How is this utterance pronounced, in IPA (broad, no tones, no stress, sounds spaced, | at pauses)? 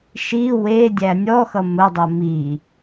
ʃ i w e dʲ æ nʲ ɔ x ʌ m ə dˤ o m i